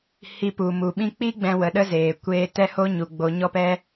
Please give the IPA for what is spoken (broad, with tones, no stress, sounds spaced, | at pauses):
h i˧ p u˨ m u˨ ɓ ĩ˧ k͡p i˦ ɡ͡b ɛ̃˧ w ə˨ ɗ ə˦ z eː˨ kʷ eː˧ t ɛ˦ h o˦ ɲ u˨ ɡ͡b o˧ ɲ ɔ˦ p ɛ˦